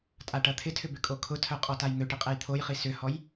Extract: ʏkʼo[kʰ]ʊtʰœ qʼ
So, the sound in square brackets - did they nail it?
yes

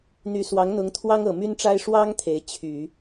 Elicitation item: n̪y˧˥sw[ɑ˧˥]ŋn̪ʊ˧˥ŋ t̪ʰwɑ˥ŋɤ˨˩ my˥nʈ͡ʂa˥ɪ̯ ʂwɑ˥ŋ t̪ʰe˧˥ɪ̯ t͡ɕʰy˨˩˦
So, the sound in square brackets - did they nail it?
yes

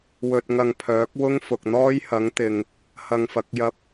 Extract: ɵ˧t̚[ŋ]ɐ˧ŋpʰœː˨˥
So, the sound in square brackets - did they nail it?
yes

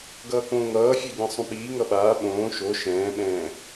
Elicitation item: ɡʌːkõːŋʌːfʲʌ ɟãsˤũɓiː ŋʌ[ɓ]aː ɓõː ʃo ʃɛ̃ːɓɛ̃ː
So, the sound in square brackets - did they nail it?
yes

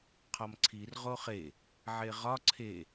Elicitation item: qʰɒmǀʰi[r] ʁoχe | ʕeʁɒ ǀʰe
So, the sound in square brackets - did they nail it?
yes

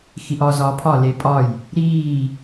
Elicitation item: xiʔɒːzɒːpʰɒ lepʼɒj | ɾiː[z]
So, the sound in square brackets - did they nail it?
no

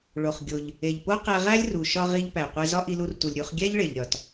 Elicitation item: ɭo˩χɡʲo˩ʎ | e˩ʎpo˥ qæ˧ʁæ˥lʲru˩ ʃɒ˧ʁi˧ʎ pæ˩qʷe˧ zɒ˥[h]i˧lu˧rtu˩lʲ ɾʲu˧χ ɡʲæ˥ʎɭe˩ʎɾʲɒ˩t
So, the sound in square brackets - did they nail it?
no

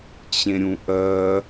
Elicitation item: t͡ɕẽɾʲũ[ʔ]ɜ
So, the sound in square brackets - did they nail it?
yes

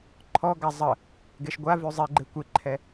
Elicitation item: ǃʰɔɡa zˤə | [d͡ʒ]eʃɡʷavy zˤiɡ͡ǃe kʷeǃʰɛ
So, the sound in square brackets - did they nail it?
no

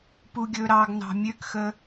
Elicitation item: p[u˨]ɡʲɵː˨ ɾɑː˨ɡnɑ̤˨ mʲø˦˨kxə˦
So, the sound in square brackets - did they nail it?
yes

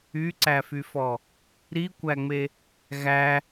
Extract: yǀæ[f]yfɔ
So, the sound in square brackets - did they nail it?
yes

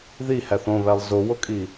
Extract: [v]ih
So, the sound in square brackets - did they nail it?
no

